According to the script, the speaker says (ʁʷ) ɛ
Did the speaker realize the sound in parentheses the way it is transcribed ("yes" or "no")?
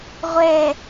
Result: yes